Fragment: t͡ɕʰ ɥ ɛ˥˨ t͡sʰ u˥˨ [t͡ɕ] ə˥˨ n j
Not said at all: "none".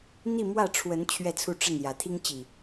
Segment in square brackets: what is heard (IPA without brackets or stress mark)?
ʈ͡ʂ